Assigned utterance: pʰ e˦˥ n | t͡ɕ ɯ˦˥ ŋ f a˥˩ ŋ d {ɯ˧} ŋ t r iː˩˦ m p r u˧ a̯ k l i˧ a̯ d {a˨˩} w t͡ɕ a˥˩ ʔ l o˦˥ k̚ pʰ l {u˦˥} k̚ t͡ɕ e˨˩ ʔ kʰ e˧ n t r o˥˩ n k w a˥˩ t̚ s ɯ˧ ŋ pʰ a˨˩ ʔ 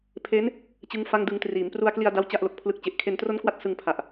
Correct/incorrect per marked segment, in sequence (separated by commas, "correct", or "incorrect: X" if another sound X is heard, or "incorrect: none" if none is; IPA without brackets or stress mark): correct, incorrect: a˥˩, incorrect: ɯ˦˥